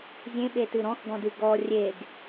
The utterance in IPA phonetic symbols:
zʲẽɓetɨ ɾɔ̃xɡɔ̃dɨ ɡɔ rʲeɡ

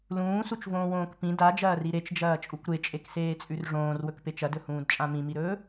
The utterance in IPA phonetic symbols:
lũːsut͡ʃvõːwõːk pĩ dad͡ʒɐːri ɾet͡ʃd͡ʒɐːt͡ʃʼukʷ ɾet͡ʃʼekseːt͡sʼʉr ʐõːrwɵkpet͡ʃ ɐdɵhũːdt͡ʃʼã mĩmiɾɵː

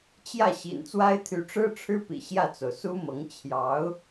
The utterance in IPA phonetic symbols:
t͡ɕjä˥˩ ɕḭ˨˩nt͡swa˥ɪ̯ t̪ʰy˧˥ʈ͡ʂɻ̩˥ʈ͡ʂʰɻ̩˥pḭ˨˩ ɕjä˥˩t͡so˩ʊ̯su˥mɤ˧˥ŋ t͡ɕʰjɑ˧˥ʊ̯

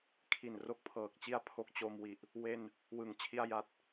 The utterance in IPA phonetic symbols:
kʰi˨˩nro˦˥k̚pʰɤː˨˩k̚t͡ɕi˥˩a̯ pʰo˦˥k̚t͡ɕo˧mwi˨˩ʔ | we˧n | wɯ˩˦ŋ t͡ɕʰi˧a̯ja˨˩t̚

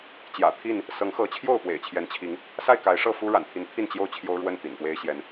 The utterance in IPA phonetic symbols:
t͡ɕjä̰˨˩t̪ʰi˥˨n | sɤ˨˦ŋxɤ˨˦ t͡ɕʰjo˥˨ʊ̯pwḛ˨˩ɪ̯t͡ɕʰjɛ˨˦nt͡ɕʰi˨˦ŋ | sa˥˨ɪ̯ka˨˦ɪ̯ ʂɤ˥˨fu˦ ɻa̰˨˩nt̪ʰi˨˦nt̪ʰi˥˨n t͡ɕjo˥˨ʊ̯t͡ɕʰjo˦ʊ̯ɻwə˥˨n t̪ḭ˨˩npwe˦ɪ̯ɕjɛ˨˦n

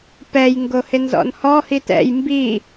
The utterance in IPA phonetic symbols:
pɛj ŋɡohɪnzɔ̰nhɔ hitɛ̰j mbi

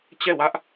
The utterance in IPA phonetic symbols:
t͡ɕɛ˦˨wä˦ʔ

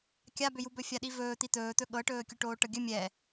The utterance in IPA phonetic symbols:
kʲabʏjubɵ fʲaɗivɵː t̪it̪ɵːt̪ɵ ɠɤʈɵː kʲuʈoːʈɤɡʲɵ mʲɛ

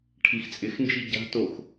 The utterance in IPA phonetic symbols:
ʈʰixt͡sʼɪxnd͡ʒi ɟa̤tox

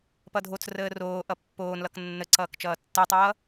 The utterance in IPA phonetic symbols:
pʌdʱot͡s rəːroː ʔʌpːoːnlʌk nːəǀʌːk t͡ʃʌːtːəːtˤʌː

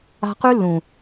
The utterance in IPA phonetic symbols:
a̤˧ qʉ˦lːũ˨

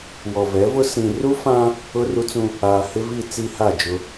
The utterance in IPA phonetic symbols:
wɔ˨vɛ˨˦vʊ˦ sĩ˨ru˦fã˦ | ʊ˦ru˦t͡sũ˦ | aː˨hɪ˦vi˦˨ t͡si˦ha˦˨d͡ʒʊ˦

